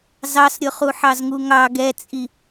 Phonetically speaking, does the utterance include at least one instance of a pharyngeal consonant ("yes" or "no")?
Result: yes